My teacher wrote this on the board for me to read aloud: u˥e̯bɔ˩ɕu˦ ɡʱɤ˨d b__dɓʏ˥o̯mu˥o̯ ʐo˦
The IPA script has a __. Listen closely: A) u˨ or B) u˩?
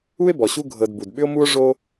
B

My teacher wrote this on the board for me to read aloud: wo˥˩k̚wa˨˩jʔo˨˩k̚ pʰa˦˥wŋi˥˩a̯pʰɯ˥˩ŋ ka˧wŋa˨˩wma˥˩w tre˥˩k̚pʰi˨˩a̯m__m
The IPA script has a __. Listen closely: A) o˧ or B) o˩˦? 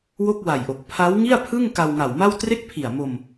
A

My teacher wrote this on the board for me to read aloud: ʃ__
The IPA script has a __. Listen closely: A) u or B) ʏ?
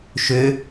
B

